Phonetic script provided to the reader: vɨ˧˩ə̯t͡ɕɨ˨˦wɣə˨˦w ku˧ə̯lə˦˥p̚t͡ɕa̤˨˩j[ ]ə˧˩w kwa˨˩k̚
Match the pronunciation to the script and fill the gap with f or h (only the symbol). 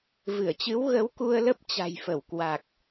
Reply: f